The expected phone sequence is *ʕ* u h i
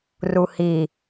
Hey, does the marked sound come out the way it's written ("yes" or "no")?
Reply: no